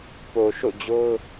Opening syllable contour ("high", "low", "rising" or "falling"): low